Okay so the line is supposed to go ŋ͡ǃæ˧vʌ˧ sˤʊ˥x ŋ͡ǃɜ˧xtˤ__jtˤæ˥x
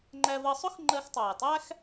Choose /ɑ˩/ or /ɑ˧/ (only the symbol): ɑ˩